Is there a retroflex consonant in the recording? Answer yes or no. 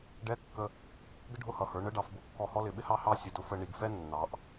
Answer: yes